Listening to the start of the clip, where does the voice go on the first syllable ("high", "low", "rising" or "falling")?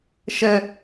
high